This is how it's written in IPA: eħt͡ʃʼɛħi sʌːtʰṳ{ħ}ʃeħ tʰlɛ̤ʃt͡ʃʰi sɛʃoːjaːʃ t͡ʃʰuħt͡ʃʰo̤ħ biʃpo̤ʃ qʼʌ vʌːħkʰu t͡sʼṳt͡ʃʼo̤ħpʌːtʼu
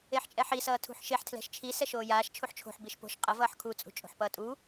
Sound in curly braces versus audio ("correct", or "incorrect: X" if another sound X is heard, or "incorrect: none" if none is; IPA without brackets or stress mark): correct